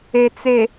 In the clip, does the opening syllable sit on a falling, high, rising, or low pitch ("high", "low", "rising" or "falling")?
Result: low